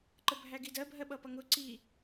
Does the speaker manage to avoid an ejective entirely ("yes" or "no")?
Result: yes